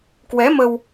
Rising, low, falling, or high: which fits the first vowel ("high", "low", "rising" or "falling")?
rising